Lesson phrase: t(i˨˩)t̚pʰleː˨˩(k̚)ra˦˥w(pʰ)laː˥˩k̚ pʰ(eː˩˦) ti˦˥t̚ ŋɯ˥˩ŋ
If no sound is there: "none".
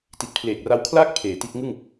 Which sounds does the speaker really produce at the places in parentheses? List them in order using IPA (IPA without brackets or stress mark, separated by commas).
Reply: i˨˩, k̚, kʰ, eː˩˦